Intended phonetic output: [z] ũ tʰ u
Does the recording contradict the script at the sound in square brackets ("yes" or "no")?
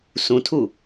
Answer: yes